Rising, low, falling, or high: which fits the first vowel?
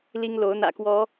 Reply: high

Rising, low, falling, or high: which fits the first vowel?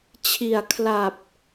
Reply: low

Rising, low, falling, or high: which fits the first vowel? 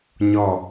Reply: falling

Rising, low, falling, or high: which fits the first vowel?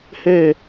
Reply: falling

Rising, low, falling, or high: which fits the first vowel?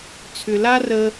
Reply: low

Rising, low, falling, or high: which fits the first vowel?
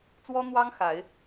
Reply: high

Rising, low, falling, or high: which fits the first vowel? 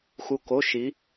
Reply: rising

